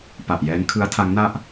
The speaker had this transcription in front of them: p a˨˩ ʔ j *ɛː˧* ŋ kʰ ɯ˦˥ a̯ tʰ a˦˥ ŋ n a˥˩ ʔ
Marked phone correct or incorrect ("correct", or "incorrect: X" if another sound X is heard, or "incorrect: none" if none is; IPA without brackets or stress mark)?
incorrect: ɛː˦˥